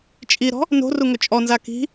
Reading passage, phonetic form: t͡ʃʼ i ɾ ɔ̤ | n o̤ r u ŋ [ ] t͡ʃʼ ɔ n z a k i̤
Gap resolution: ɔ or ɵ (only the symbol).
ɵ